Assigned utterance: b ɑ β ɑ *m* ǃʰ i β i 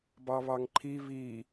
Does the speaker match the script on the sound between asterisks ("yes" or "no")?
no